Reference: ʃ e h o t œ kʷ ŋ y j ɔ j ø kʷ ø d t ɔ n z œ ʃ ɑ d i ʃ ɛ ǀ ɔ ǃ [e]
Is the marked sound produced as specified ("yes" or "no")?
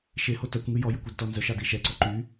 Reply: no